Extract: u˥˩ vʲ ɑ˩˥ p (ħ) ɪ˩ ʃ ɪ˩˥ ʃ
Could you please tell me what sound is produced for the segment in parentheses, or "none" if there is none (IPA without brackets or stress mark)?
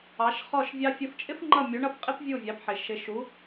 ħ